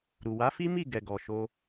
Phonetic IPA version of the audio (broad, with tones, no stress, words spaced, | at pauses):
ɾu˨wa˨˦fi˦ mi˦˨ ɡɛ˨ɡɔ˨ʃo˧